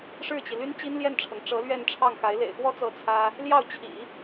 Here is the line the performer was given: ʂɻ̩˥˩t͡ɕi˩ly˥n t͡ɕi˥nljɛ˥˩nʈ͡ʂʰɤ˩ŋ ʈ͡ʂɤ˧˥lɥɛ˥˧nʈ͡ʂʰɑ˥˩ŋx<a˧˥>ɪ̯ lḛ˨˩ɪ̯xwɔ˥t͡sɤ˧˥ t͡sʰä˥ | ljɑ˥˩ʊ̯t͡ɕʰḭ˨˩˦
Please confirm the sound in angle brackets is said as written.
yes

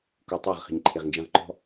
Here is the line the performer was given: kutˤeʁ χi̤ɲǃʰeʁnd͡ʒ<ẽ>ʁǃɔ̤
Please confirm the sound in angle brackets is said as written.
yes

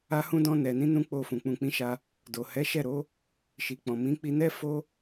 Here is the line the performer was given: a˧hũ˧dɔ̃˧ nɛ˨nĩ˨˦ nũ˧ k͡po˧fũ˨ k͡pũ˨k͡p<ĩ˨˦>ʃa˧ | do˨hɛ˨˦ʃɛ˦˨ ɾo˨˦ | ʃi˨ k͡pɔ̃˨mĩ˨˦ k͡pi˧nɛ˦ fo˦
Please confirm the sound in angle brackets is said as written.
yes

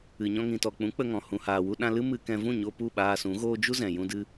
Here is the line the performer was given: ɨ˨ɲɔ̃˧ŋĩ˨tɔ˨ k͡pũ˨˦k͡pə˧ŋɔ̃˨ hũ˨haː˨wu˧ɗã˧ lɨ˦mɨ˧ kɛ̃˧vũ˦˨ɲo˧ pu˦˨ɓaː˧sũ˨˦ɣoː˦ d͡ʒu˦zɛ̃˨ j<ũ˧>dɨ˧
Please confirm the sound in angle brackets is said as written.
yes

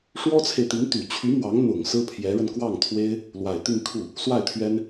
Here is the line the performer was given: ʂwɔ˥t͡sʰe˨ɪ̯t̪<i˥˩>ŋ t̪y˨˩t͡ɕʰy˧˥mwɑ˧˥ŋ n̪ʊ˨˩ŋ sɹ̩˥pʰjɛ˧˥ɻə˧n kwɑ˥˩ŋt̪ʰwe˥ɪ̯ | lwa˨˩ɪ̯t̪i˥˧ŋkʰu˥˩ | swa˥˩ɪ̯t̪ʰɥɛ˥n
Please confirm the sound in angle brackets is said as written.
no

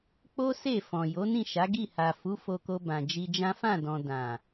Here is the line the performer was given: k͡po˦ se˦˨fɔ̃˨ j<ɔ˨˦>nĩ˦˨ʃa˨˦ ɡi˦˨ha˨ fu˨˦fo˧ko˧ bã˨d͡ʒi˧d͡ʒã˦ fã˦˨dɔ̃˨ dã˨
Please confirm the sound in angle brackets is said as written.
no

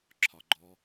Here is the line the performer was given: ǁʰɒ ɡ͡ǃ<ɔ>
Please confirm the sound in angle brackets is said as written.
yes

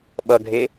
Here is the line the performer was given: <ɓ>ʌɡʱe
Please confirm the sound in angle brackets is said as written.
yes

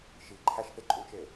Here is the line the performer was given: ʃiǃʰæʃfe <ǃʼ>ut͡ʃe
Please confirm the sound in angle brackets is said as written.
yes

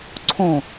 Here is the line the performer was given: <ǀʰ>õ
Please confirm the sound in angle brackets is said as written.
yes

